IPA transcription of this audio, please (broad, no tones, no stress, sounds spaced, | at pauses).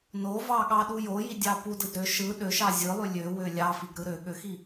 n o v ɑ ɠ ɑ ɗ u j o j i dʲ ɑ p u d ɯ d ɾ ø ʃ ɯ ɗ ø ʃ ɑ zʲ ɯ lˠ y lʲ ø w ø lʲ ɑ f i ɡ ɾ ɯ ɾ ø ɠ ø x i